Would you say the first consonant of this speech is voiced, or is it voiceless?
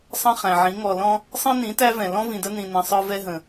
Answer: voiceless